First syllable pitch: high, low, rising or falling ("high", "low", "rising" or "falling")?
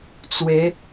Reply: rising